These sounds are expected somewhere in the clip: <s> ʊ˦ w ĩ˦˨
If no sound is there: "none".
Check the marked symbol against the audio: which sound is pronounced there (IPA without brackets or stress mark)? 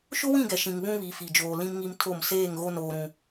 ʃ